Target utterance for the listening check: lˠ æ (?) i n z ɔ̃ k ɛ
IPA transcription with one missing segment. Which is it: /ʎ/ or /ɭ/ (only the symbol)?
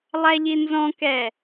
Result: ʎ